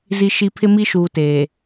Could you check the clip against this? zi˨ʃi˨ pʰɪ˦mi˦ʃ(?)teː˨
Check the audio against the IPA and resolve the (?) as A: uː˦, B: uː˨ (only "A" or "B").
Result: B